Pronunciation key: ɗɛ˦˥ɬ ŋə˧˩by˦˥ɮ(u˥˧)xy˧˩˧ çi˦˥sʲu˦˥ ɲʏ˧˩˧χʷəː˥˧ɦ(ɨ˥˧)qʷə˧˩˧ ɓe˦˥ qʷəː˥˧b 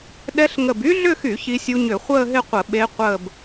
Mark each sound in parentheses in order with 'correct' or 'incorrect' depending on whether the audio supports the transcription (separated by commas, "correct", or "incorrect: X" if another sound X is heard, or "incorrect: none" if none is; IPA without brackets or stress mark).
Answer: incorrect: ʏ˥˧, incorrect: ɪ˥˧